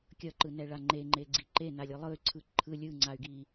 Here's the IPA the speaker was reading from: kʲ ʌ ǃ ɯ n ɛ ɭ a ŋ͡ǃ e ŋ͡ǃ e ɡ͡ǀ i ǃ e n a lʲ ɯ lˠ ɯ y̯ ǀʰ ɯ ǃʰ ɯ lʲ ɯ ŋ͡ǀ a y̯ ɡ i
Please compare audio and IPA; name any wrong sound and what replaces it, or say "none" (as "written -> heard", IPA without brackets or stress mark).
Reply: none